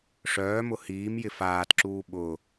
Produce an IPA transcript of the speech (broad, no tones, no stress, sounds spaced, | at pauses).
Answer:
ʂ œː m ʊ h iː m j ɪ f aː t ǁ uː ɓ ʊ